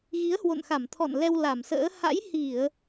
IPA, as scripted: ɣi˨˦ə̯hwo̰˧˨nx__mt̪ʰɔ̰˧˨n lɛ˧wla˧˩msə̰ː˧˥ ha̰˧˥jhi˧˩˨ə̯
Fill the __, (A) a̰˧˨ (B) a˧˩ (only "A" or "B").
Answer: B